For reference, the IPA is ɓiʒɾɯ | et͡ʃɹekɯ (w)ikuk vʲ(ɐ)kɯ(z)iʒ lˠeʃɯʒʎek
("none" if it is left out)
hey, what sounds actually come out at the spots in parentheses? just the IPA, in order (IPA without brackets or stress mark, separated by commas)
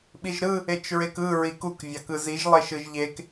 ɹ, ɑ, z